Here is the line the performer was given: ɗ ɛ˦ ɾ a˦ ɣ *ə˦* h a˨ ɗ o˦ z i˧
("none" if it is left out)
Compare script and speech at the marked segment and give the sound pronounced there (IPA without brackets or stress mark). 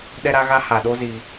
a˦